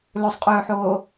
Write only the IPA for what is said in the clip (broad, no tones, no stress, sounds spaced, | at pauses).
l ɵ sˤ qʼ ɵː ħ oː